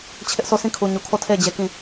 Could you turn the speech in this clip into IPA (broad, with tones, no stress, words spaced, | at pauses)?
t͡ɕʰɪ˦ʔsʰo˦˨sĩ˦˨kʰu˨ ɲu˨kʰo˦˨tʰe˦˨ɪ̯ d͡ʑe˦kĩ˦˨